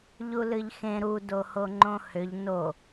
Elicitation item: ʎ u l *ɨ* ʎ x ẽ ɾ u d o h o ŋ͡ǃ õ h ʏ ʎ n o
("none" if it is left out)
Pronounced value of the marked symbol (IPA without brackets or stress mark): ɨ